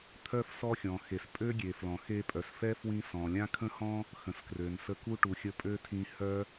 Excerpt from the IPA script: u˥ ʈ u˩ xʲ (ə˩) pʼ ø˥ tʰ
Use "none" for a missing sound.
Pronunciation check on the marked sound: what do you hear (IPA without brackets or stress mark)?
ə˧